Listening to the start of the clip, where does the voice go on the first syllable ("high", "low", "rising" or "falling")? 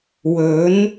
rising